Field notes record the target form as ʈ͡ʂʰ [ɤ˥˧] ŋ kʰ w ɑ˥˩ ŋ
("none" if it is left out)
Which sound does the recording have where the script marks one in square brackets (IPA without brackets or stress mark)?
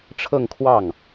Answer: ɤ˥˧